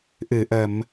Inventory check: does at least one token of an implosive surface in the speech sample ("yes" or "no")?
no